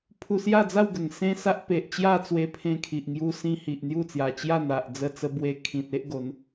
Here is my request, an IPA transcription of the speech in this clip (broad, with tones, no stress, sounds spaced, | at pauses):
pʰ u˧ s j a˥˧ d͡z a˥˧ w ɡ ə˨˩ ŋ s ẽ˦ s a˦ ʔ p e˨ ʔ t͡ɕ j a˥˧ t͡s w e˧ pʰ ẽ˧ kʰ i˨ ʔ ŋ j u˧ s ĩ˧ h i˨ ʔ n̪ j u˥˧ t͡s j a˨˩ t͡ɕ j a˥˧ n̪ a˨ ʔ d͡z ə˥˧ t͡s ə˦ b w e˦ kʰ ĩ˨ t̚ e˦ ʔ ɡ o˨˦ n